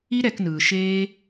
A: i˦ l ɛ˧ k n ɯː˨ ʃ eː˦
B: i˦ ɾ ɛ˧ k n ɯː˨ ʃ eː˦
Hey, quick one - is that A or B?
B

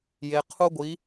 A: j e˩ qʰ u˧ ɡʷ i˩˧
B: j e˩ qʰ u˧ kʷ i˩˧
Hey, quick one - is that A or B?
A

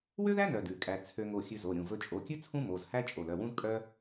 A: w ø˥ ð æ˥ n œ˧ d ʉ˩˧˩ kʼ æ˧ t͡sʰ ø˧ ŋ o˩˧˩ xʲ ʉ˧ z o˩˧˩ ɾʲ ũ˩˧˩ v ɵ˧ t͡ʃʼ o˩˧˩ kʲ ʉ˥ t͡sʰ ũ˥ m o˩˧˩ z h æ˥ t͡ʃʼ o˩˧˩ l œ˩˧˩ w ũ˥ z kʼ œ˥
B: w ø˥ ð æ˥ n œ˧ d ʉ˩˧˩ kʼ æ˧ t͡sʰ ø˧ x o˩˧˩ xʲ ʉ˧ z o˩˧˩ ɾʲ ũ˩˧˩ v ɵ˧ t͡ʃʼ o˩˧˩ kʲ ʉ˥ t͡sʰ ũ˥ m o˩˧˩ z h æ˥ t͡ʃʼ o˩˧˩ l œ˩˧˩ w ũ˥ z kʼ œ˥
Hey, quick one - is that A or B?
A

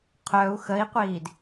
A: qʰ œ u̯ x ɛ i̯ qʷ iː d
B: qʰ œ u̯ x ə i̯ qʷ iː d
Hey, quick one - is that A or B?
B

